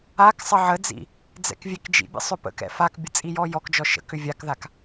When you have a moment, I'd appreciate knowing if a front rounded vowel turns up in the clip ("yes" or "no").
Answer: yes